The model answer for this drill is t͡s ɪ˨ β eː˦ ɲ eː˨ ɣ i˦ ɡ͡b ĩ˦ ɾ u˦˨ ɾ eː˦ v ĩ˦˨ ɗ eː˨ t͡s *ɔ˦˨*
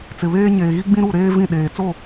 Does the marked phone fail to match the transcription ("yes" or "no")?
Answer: yes